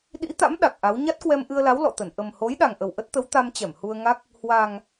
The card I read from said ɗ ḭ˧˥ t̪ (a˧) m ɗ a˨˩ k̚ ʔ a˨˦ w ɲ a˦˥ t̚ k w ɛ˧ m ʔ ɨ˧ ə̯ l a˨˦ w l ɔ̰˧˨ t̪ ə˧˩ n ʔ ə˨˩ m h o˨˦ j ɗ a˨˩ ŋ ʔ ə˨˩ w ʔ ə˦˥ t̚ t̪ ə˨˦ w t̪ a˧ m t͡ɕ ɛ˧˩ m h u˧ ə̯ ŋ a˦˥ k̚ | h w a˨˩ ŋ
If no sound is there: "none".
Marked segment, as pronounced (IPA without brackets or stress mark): a̰˧˥